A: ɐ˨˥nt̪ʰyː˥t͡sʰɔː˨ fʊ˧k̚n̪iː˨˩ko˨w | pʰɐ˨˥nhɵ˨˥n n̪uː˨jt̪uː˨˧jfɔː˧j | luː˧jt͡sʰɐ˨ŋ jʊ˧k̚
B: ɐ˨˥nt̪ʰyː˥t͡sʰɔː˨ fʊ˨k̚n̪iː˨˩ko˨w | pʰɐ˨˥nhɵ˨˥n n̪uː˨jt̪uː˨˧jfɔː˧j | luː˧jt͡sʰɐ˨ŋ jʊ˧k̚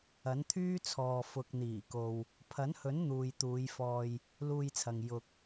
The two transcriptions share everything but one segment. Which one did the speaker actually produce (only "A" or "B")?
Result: B